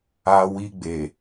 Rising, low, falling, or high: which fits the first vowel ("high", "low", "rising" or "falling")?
high